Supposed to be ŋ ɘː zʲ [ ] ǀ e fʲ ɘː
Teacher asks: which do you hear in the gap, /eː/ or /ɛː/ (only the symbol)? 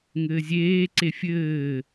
eː